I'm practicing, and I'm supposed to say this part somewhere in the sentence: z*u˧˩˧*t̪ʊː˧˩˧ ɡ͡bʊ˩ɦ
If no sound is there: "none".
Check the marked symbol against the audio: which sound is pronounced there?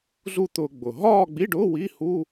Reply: u˥˧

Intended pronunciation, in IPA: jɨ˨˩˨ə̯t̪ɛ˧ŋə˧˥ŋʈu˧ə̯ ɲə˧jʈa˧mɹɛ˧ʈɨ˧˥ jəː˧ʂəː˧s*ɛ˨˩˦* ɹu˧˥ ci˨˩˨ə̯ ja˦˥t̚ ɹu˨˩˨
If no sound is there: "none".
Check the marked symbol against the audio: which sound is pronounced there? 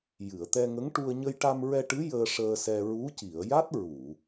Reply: ɛ˧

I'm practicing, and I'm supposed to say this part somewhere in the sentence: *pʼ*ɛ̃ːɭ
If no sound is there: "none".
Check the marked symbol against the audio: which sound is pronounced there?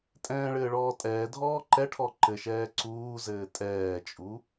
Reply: tʼ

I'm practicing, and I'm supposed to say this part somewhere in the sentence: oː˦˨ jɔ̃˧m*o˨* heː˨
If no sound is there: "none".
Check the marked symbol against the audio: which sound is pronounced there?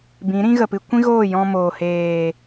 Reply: oː˨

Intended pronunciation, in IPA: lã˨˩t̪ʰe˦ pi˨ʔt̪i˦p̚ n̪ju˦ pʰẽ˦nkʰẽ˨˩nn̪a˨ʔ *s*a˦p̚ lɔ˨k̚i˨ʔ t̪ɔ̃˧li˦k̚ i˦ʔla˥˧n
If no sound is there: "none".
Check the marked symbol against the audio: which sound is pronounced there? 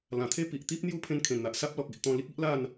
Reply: s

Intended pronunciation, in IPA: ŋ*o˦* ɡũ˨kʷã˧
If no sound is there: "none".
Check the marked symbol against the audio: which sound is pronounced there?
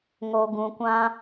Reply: o˨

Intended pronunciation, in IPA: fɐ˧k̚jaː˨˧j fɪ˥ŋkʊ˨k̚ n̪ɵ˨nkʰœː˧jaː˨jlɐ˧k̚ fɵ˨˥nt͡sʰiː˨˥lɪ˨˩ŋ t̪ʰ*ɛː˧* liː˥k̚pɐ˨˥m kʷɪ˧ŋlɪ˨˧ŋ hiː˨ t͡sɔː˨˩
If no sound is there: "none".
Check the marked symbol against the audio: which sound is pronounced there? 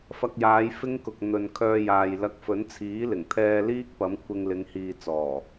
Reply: ɛː˧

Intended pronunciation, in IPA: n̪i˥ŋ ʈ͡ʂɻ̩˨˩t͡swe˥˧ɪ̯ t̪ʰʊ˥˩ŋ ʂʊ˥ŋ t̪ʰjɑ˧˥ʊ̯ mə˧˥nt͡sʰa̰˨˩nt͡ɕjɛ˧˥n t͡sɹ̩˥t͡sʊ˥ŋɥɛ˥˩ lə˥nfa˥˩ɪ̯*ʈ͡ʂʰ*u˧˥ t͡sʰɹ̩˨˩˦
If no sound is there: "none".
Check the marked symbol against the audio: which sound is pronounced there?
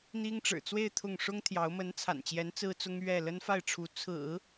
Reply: ʈ͡ʂʰ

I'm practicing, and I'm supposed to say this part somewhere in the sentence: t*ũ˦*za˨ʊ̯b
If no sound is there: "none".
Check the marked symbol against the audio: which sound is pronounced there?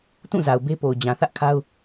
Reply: ũ˦˨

